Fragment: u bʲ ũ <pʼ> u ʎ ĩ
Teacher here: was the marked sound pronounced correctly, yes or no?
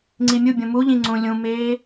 no